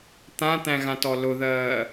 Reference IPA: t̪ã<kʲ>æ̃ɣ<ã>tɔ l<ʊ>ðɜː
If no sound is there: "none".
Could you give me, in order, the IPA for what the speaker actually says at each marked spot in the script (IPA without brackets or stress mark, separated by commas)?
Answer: t̪, ã, ʊ